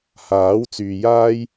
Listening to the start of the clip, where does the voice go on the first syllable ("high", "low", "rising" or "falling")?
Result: rising